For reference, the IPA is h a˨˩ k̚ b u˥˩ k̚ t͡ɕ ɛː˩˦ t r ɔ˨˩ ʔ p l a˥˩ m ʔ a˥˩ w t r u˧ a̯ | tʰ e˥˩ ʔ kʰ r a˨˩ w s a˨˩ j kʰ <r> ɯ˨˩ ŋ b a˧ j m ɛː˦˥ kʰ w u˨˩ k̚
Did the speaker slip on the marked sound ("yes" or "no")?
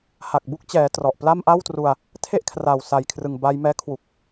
no